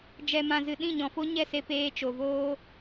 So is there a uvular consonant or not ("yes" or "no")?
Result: no